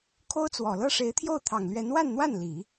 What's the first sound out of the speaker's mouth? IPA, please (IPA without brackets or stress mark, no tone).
kʰ